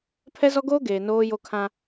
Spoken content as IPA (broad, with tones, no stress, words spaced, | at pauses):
pʰɛ˦zɔ˦ɡoː˦ɡeː˨ noː˦jo˦kʰã˦